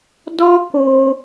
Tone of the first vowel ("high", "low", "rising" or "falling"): high